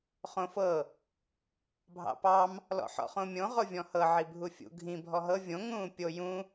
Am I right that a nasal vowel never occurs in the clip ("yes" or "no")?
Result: no